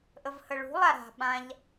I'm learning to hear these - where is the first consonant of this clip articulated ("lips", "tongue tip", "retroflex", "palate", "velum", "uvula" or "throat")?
throat